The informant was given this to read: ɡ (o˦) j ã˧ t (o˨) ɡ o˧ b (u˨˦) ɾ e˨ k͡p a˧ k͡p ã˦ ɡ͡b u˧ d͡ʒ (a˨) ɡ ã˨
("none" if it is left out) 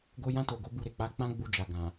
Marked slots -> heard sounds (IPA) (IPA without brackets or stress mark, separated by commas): o˧, o˨, u˧, a˨